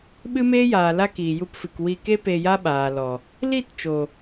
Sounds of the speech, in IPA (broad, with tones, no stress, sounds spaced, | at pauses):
ɓ ɨ˦ m eː˦ j aː˨ l a˦ k iː˨ j u˧ p f ɨ˨ k w i˧ k e˦ p e˧ j a˦ ɓ aː˨ l ɔ˨ | l i˦˨ t t͡ʃ o˨